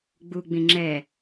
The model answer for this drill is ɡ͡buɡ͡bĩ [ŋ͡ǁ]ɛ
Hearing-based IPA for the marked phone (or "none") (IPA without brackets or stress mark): ŋ͡ǁ